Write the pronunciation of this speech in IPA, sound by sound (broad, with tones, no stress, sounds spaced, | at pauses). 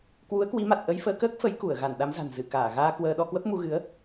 k w u˨˦ ə̯ k w i˨˦ m a˨˩ t̚ ʔ ə˧ j f əː˧ k əː˦˥ k̚ f ə˨˦ j k u˧˩ ə̯ ɣ a˧˩ n ɗ a˨˦ m z a̤˨˩ n z ɨ˧˩ k aː˧˩ ɣ aː˧ k w əː˧ ɗ ɔ˧ k w ə˦˥ p̚ m u˧ ɣ ɨ˨˦ ə̯